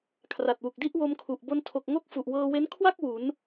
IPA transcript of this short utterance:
kʰ r a˨˩ t̚ w u˨˩ k̚ d i˥˩ ʔ w o˧ m kʰ u˨˩ ʔ b o˧ n tʰ o˨˩ k̚ ŋ o˥˩ k̚ f u˨˩ ʔ w ɤː˧ w e˦˥ n kʰ w a˥˩ k̚ w u˩˦ n

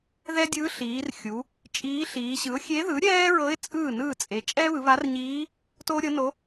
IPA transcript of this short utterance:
ð ɛ˥ dʲ ɯ˧˥ ɬ iː˩˧ r xʲ u˩˧ | t͡ʃʼ iː˧˥ ɬ iː˩˧ ɕ ɯ˩˥ ʊ̯ xʲ e˧˥ ð ɯ˩˥ ɾʲ ɛː˥ ɹ ɤ˧˥ ɪ̯ t͡sʼ ɯː˥˩ n ɯː˥˩ t͡sʼ e˩˧ t͡ʃʼ ɛ˥ β ɯ˩˧ β a˧˥ r ɲ iː˧˥ | t oː˥ ɾʲ ɤ˧˥ n o˧˥

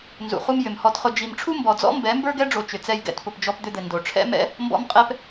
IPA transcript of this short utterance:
n z ṵ˨ χ u˧ m j ʏ˨ m h ɔ˧ t χ ʊ˧ d͡ʒ i˨ m ʈ͡ʂʰ u˦ m b ɔ˨ d͡z ɔ̰˦ m b ɛ˨˦ m b ə˞˦ ɡ ɛ˦ ɖ͡ʐ o˨ t͡ʃ ʏ˨ t͡s ɛ˧ j ɡ ɛ̰˧ t p ʊ˨ p d͡ʒ ɔ˧ p d̪ ʏ˧ d̪ ɘ˨ n d o˨ ʈ͡ʂʰ ɛ̰˦ m ɛ̰˦ | m b ɔ̰˦ m qʼ ɛ˦ p

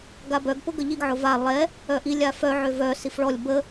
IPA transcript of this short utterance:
ɡ a b œ ɡ p ʊ ɡ ə ʎ i ɡ ʕ ʊ v a lˠ ɛ | œ ʔ i lʲ a f œ ʕ ø v œ s i f ɭ ɔ lʲ b ə

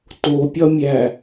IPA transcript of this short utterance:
t o pʲ ɒ mʲ æ

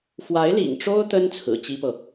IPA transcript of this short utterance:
f w a˧˥ ɪ̯ l ḭ˨˩ ŋ ʈ͡ʂ o˥ ʊ̯ t̪ ə˥ n t͡sʰ ɹ̩˨˩ t͡ɕ i˥ p ɤ˨

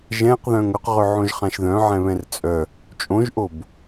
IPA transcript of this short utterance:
ʒ ɛ̃ q ð œ̃ ŋ ɵ q ʁ ɵ ʕ õ ʒ χ ã ʃ ð œ̃ ʕ ɛ̃ β ɛ̃ r t͡sʼ œ | t͡ʃʼ õ ʒ ʔ o b

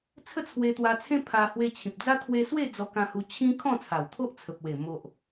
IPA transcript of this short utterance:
t͡sʰ ə˥˧ t͡sʰ w e˧ t̪ w a˧ t͡sʰ ẽ˦ pʰ a˧ h w e˧ t͡ɕʰ ĩ˨ p̚ d͡z a˦ t̪ʰ w e˧ s w e˥˧ d͡z ɔ˧ k ã˧ h u˧ t͡ɕʰ ĩ˦ kʰ ɔ̃˥˧ t͡sʰ a˨˩ w t̪ʰ o˦ ʔ t͡sʰ ə˨ p̚ w e˨˩ m o˨ ʔ

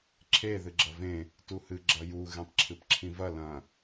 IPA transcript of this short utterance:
ǁʰ e ð ɨ ɡ͡ǁ ɐ v ẽ | t u h ɨ ɡ͡ǁ ɐ j u ɣ ẽ tˤ ǁʰ ɨ p ǁʰ ĩ v ɐ l ɐ̃

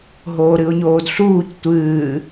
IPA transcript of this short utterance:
ɦ oː ɾ ɨ ʊ̯ ɲ oː d ɬ uː c tʷ ɨː

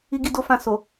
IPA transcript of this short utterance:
i˦ ɡ i˦ d o˦ f ã˦˨ s o˨

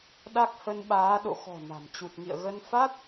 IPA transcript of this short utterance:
ɗ a˦˥ k̚ h ə˧ n ɓ aː˨˦ ɗ o̰˧˨ x ɔ̤˨˩ n a̤˨˩ m t͡ɕ u˨˩ t̚ ŋ ḭ˧˨ ə̯ ɣ ə˧ n f a˦˥ t̚

